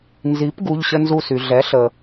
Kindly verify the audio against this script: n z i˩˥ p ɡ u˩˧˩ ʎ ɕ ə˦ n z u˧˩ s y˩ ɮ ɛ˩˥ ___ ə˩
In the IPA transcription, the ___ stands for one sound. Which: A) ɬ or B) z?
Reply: A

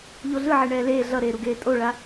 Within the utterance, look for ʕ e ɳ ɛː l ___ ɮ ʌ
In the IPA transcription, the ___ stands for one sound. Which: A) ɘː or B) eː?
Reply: B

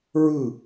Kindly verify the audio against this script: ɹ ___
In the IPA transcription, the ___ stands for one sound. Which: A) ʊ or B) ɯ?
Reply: B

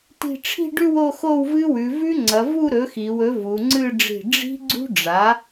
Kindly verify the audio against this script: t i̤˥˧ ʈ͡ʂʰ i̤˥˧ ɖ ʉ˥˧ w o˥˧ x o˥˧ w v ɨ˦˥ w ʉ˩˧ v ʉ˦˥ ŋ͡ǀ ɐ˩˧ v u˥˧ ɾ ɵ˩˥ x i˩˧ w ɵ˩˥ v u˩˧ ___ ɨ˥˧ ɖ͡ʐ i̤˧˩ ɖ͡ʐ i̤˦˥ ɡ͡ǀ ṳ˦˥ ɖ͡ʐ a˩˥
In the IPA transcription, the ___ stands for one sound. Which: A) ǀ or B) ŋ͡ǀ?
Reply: B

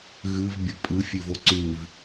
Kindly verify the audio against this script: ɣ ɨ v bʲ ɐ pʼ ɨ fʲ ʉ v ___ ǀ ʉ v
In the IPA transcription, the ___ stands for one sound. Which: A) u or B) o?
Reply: B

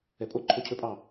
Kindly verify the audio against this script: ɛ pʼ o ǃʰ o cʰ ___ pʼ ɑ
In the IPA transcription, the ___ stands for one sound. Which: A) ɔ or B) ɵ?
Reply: B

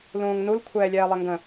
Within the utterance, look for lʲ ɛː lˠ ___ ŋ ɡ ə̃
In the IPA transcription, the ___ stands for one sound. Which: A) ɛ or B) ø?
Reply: A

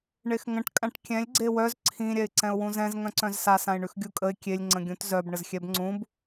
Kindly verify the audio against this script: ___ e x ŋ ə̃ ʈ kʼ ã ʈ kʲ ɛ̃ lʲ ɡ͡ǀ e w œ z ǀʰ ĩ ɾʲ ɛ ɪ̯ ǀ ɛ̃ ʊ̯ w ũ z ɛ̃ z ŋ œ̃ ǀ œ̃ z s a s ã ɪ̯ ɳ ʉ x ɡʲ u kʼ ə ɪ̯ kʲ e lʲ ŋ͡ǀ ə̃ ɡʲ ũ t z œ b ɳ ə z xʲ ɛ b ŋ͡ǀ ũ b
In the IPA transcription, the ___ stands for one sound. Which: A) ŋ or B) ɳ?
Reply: B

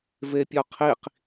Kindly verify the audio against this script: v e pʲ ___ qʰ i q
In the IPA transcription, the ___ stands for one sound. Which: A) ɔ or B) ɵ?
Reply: A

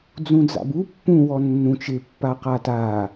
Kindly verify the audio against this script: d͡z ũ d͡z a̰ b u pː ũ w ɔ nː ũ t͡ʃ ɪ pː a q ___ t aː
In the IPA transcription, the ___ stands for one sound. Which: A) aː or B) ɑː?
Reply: A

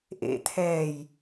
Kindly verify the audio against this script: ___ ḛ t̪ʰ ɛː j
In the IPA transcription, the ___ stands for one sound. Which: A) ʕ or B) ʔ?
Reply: B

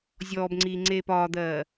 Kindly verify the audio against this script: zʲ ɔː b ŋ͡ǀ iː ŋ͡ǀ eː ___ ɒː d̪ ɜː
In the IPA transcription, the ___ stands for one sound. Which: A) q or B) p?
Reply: B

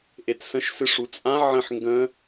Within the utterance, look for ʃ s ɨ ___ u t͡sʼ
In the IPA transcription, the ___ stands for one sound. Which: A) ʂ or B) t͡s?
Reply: A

